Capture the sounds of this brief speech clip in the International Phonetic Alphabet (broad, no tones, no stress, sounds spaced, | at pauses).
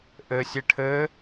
ʔ ɘ sʲ ɘ ʈʰ ɘː